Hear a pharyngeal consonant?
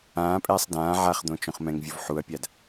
yes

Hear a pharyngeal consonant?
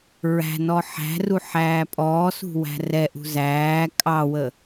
yes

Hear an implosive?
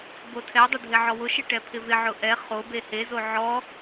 no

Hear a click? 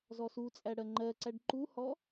yes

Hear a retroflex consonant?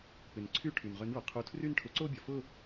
yes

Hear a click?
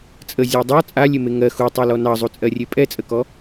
no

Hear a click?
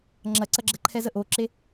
yes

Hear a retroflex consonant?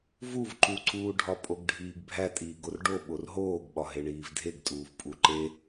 yes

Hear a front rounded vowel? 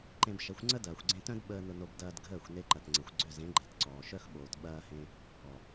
yes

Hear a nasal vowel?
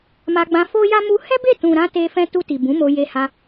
yes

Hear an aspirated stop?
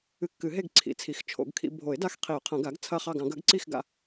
yes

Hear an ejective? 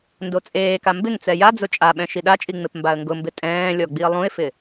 yes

